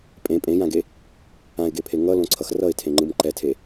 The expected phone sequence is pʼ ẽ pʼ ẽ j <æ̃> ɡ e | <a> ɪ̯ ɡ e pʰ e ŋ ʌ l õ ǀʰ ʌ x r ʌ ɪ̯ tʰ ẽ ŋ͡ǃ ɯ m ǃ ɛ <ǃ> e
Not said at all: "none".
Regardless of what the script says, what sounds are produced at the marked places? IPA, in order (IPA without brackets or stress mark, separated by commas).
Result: ã, ã, tʰ